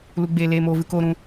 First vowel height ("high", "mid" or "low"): high